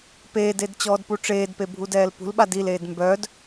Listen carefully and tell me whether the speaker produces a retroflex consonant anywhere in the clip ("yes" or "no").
yes